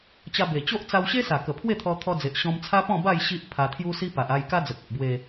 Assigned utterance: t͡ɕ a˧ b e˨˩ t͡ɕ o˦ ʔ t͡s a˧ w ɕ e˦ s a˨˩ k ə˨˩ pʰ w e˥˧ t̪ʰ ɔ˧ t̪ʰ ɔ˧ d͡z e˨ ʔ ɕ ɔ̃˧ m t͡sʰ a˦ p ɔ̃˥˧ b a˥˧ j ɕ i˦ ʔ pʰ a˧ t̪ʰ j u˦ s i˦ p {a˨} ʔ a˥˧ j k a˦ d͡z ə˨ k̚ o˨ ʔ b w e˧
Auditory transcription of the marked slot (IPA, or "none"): a˨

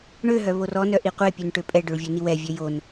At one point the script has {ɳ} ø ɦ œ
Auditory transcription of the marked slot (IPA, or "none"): ɳ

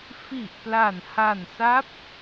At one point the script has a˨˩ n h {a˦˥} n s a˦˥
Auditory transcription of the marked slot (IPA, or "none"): a˨˩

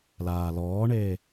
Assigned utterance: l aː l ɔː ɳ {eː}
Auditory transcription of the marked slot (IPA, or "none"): eː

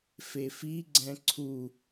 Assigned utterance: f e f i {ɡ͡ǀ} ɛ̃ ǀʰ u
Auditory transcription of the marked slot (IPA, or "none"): ɡ͡ǀ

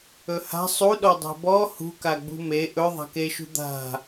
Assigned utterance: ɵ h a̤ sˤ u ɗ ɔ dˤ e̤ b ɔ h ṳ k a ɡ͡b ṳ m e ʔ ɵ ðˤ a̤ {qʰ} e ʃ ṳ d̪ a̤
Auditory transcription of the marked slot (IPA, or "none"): k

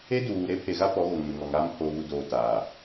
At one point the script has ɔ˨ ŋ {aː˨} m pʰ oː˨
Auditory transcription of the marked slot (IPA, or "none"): aː˦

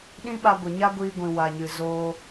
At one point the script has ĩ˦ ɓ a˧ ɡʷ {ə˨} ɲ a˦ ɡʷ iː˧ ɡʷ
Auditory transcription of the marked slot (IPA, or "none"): ə˨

